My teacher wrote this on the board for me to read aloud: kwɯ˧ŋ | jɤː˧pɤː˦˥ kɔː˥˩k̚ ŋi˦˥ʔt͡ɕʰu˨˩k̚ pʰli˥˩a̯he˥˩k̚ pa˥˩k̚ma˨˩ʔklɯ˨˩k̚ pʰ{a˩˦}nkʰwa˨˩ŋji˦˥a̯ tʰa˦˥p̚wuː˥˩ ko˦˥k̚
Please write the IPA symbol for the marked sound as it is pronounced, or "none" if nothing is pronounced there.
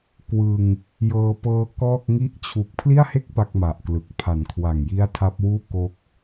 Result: a˩˦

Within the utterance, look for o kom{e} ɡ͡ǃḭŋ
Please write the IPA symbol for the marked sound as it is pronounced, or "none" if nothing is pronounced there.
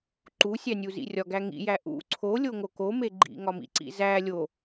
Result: e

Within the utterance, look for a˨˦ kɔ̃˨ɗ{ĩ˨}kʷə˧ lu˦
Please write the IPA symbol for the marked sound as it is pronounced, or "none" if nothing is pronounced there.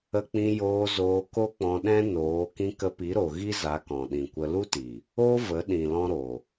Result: ĩ˨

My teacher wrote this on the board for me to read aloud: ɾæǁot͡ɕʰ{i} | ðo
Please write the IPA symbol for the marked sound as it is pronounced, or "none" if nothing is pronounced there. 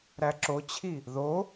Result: i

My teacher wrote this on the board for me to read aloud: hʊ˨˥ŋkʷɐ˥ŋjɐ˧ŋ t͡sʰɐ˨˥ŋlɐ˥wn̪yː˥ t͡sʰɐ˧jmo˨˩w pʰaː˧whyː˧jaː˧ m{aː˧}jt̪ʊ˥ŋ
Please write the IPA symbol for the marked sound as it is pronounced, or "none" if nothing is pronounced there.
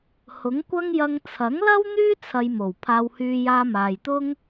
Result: aː˨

